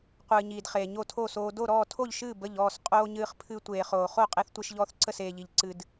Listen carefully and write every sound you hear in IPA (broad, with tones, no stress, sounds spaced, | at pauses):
qʷ ɨː˧ ɲ iː˧ d χ eː˧ ɲ o˥˧ tʰ o˥˧ s oː˧ d o˥˧ ɾ ɔː˥˧ tʰ o˥˧ ʎ ʃ ɨː˥˧ b ə˥˧ ʎ ɔː˥˧ s qʼ oː˧ ɲ ɨː˧ χ pʰ ɨ˧ tʷ eː˧ χ oː˧ χ o˥˧ qʼ e˧ θ tʷ e˧ ʃ ʎ ɔː˧ θ ǀ ə˥˧ s eː˧ ʎ i˧ ʎ ǀ ɨ˧ d